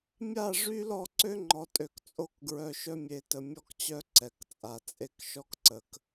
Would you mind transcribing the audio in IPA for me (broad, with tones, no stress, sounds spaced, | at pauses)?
mʲ a˦˨ ʐ y˦ l ɔ˦˨ ǀ ø˦ ŋ͡ǃ ɔ˨ tʼ ø˨ k t͡sʼ o˦˨ k ɡ ɹ œ˨ ʃ œ˦ mʲ e˨ t ə˨ mʲ ɔ˦ k t͡ɕ œ˦ ǀ ɛ˨ k t͡sʼ a˨ t͡sʼ e˦ k ʃ ɔ˦ k ǀ ə˨ k